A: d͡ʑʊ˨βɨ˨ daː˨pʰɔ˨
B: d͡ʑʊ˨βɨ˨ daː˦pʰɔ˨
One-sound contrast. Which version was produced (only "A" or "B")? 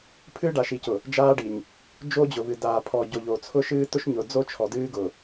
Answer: A